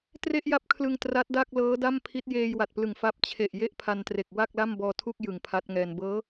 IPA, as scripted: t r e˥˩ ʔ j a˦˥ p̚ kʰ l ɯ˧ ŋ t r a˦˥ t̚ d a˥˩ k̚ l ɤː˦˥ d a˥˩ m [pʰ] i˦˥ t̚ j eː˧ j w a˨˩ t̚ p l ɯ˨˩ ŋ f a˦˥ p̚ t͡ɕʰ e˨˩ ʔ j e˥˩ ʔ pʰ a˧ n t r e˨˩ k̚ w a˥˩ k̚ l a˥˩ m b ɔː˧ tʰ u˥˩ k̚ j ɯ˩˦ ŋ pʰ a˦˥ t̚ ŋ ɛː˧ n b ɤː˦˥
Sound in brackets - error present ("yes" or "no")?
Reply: no